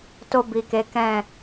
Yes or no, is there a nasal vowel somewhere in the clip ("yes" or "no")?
yes